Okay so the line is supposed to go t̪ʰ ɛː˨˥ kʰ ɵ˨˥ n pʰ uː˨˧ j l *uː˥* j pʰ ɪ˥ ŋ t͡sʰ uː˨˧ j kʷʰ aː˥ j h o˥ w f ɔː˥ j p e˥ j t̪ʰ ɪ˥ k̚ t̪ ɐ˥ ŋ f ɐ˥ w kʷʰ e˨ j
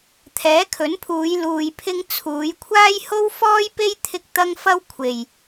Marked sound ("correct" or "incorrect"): incorrect